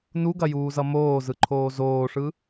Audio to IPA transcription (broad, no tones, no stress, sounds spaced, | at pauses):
n u ɡ ɐ j uː z ʌ m oː z ɯ ǃʰ oː z oː ʂ ɯ